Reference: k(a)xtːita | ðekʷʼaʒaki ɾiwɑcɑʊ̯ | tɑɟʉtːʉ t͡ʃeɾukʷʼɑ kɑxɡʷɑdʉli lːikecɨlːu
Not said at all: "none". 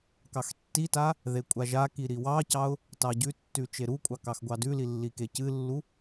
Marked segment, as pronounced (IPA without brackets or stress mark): ɑ